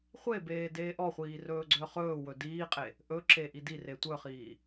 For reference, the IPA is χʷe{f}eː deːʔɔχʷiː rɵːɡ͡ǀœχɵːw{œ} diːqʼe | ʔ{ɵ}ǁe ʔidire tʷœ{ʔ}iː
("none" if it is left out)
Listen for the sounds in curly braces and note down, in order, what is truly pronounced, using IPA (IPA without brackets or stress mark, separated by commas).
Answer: b, ɵ, ɵ, χ